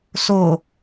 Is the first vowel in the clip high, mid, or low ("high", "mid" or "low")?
mid